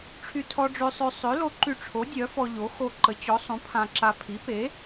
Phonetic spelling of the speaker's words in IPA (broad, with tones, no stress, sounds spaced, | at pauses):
ʈ͡ʂʰ y˧ tʰ ɔ˧ ɖ͡ʐ ø˧ sˤ ø˧ sˤ ø˩˥ l o˧ ǃ y˧ ʈ͡ʂʰ o˩˥ dʲ œ˩˥ f ɔ˧ ʎ o˩˥ x o˧ ǃ ə˩˥ t͡ɕ ɔ˩˥ sˤ ũ˩˥ pʰ ã˧ ǁ a˧ pʰ i˩˥ p e˩˥